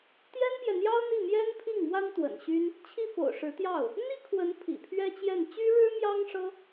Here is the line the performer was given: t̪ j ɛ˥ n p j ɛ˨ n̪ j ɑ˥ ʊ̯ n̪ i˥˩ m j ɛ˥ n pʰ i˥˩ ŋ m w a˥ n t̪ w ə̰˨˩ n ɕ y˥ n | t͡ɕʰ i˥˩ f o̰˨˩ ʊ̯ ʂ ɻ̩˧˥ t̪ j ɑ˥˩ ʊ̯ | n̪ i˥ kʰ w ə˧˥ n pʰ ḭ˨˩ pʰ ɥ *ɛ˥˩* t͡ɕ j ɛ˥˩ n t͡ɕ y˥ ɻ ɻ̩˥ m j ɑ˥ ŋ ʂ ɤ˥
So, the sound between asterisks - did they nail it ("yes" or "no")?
no